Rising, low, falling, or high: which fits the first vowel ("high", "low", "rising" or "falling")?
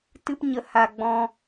high